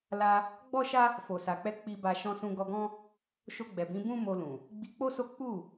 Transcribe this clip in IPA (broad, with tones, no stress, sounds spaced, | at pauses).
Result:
l a˧ | ɡ͡b ɔ˦ ʃ a˦ | f o˨ s a˨ k͡p ɛ˧ k͡p i˧ b a˧ ʃ ɔ̃˧ s ũ˧ ɡ ɔ˧ ɡ ɔ̃˦ | ʃ o˧ ɡ͡b ɛ˨ b ĩ˨˦ b ũ˦ m o˧ l ũ˨ | ɡ͡b i˧ k͡p o˦ s o˦ k͡p u˦˨